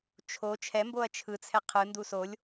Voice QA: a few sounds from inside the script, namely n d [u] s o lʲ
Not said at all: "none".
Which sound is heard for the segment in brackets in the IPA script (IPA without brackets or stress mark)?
u